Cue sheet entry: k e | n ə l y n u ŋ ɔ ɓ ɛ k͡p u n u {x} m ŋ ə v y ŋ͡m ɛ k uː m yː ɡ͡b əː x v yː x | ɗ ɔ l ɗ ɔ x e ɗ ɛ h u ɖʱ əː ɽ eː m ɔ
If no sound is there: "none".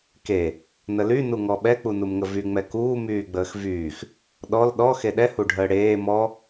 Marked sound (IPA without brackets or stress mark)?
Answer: none